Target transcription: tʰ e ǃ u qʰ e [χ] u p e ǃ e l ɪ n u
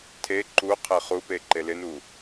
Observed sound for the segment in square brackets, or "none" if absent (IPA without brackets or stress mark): χ